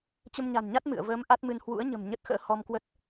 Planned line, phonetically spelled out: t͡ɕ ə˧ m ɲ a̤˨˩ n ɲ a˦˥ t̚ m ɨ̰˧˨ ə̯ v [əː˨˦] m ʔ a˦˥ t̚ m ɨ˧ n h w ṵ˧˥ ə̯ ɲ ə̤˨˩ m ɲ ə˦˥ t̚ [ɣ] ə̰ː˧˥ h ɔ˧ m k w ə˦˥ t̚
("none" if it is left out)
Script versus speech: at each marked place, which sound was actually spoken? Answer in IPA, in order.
əː˨˦, x

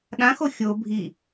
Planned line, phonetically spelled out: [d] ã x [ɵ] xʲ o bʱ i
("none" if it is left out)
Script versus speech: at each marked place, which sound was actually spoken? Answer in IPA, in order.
ɗ, o

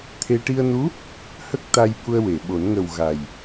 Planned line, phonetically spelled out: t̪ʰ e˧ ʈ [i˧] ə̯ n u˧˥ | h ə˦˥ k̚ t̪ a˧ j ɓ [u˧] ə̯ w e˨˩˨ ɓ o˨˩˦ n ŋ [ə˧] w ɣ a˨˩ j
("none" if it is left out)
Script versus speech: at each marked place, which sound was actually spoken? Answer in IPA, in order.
i˧, u˧, ə˨˩

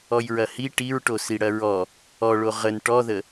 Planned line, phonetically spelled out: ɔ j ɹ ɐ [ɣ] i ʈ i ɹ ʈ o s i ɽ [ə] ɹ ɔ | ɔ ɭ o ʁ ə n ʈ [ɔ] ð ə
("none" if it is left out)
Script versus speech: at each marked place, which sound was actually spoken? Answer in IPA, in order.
h, ɐ, ɔ

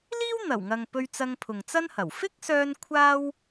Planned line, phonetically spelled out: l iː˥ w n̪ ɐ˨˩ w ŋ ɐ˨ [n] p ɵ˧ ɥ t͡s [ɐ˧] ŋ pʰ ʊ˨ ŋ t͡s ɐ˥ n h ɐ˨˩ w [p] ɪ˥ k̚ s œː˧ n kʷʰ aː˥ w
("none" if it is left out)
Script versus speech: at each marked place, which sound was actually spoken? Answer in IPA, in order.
ŋ, ɐ˧, f

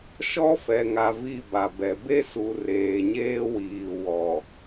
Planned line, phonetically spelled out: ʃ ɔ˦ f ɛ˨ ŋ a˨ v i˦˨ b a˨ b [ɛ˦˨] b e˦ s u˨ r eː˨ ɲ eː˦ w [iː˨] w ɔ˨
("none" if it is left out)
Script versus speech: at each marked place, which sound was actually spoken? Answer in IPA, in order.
ɛ˨, iː˨

